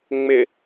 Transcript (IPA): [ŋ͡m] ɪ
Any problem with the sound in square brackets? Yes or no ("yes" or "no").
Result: no